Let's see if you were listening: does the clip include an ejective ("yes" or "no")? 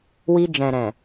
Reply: no